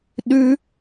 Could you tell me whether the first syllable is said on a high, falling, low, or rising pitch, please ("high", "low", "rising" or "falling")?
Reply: high